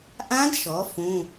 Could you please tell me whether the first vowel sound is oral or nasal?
nasal